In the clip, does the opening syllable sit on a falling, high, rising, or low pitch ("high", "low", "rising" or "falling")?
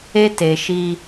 high